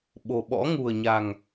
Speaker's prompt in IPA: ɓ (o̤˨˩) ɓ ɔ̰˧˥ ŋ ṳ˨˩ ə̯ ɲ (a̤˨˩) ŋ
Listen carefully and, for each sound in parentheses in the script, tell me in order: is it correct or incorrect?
correct, correct

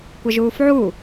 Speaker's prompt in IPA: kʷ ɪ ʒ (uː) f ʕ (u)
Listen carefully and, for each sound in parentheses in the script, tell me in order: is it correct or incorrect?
correct, correct

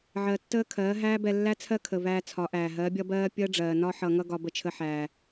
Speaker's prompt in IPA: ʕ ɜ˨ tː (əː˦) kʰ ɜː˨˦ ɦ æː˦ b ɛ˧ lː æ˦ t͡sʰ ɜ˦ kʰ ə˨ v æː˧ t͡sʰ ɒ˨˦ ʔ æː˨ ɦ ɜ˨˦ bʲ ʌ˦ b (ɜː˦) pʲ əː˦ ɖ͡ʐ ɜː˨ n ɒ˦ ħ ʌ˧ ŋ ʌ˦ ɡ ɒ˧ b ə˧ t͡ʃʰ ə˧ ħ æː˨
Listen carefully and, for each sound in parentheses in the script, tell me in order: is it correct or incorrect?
correct, correct

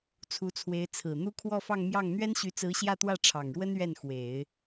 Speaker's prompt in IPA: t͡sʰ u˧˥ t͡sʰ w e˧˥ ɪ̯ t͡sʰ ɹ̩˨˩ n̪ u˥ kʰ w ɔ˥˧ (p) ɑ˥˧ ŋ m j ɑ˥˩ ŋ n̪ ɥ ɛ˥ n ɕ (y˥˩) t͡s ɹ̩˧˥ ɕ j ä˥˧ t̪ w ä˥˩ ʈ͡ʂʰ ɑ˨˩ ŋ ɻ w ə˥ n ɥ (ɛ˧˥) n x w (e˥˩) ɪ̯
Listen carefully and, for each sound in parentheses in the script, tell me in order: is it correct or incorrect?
incorrect, incorrect, incorrect, incorrect

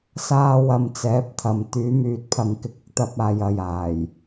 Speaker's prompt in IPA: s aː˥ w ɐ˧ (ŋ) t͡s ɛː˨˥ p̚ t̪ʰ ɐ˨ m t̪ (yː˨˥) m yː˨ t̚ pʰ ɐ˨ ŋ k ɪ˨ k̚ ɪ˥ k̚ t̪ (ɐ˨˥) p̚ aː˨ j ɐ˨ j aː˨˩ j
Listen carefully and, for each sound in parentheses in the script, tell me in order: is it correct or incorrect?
incorrect, correct, incorrect

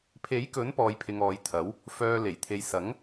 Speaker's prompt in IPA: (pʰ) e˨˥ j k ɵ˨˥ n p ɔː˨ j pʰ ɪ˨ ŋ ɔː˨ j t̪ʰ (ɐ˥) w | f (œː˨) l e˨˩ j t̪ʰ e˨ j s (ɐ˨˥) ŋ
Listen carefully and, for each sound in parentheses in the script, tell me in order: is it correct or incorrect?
correct, incorrect, correct, correct

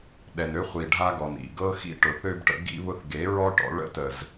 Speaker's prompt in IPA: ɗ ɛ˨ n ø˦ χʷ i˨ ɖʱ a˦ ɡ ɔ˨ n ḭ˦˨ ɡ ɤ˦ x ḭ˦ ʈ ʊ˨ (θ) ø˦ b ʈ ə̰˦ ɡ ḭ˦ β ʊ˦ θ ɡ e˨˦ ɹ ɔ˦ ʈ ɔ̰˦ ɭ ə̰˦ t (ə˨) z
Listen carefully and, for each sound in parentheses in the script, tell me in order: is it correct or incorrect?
correct, correct

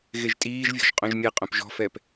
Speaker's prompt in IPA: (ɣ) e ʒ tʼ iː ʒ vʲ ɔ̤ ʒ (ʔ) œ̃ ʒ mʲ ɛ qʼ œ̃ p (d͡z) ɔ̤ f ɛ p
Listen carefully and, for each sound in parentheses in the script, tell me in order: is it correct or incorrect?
correct, incorrect, incorrect

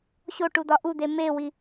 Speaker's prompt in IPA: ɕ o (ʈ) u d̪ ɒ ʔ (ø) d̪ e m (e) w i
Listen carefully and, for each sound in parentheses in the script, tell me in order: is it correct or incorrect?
correct, incorrect, correct

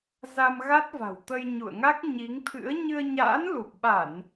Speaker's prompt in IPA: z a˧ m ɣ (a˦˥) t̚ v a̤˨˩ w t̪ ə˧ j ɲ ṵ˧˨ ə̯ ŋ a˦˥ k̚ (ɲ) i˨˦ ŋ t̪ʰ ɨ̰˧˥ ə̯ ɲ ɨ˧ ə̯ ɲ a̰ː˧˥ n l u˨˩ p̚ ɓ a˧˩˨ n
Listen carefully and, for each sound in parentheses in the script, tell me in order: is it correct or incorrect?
correct, correct

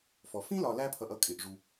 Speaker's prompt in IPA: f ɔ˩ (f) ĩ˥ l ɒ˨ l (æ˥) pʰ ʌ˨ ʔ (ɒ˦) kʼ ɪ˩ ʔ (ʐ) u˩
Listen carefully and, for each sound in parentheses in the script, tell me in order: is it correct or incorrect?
correct, incorrect, incorrect, correct

